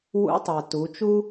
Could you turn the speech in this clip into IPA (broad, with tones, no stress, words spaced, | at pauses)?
wṵ˧˥tˤa˩ tu˩˧t͡ʃu˥